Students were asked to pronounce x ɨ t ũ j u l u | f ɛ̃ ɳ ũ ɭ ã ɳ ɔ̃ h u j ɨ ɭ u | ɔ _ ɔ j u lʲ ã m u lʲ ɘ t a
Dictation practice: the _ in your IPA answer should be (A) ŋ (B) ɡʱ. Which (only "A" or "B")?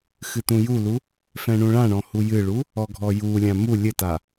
B